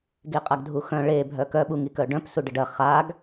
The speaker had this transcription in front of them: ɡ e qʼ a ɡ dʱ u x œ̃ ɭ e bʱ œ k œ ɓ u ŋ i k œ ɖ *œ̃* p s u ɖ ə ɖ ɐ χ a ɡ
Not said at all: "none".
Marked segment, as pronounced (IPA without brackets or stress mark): œ̃